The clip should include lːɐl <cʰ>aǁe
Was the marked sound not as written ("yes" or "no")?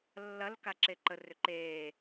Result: yes